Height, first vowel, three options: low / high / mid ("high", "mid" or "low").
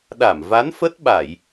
low